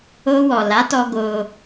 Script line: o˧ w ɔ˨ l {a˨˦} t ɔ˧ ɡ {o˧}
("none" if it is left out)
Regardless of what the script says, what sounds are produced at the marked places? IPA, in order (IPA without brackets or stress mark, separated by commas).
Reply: a˨˦, o˧